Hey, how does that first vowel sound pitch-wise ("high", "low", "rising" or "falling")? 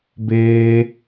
high